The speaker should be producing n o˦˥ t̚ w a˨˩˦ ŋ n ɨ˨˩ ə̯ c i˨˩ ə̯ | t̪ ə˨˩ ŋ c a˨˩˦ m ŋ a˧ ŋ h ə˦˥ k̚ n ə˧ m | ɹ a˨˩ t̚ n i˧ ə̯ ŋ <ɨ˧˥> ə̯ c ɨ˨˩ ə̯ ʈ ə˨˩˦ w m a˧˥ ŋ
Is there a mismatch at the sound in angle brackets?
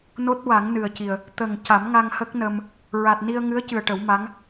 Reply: no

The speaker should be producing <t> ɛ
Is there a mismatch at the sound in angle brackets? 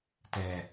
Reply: no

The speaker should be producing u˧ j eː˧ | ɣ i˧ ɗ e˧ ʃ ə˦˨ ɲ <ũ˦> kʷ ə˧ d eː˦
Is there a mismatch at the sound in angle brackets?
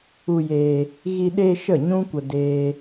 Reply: no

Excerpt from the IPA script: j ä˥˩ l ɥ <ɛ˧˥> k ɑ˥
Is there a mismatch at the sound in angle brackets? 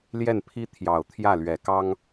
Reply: yes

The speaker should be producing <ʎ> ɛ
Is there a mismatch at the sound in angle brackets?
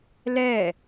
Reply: yes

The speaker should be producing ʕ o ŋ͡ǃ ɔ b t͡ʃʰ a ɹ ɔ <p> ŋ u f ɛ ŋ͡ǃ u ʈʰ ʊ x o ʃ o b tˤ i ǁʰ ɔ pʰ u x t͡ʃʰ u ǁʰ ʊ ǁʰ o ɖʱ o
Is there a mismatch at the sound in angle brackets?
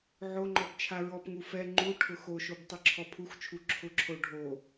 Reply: no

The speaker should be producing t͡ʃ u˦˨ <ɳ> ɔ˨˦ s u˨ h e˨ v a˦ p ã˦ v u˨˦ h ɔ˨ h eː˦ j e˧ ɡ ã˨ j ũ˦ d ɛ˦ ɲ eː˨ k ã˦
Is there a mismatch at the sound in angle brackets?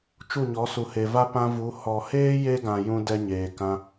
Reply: yes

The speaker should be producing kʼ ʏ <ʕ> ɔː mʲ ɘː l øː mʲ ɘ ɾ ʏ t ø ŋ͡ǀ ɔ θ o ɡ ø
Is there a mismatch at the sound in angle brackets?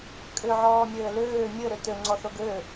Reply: no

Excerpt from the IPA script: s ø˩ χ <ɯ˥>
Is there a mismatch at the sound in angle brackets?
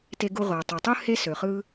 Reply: no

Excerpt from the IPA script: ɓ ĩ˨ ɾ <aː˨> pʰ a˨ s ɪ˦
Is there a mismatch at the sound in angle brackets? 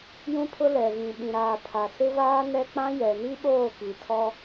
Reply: no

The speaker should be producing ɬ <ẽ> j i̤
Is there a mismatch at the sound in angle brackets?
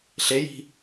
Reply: yes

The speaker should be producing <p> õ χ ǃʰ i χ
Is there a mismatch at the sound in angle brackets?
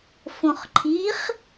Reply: yes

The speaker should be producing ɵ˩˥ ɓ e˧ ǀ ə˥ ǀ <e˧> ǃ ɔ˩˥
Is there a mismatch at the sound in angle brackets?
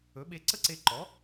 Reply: no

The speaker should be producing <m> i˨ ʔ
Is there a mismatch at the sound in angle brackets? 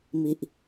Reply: no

